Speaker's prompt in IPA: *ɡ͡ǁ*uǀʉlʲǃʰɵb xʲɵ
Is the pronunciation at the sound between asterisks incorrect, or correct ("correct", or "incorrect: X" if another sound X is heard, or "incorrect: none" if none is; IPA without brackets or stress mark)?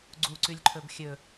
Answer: incorrect: ɡ͡ǀ